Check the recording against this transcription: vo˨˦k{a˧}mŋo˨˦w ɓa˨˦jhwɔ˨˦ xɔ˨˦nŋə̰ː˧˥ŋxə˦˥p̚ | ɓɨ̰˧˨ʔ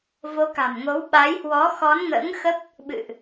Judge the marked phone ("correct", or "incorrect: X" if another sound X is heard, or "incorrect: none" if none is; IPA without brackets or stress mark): incorrect: a̤˨˩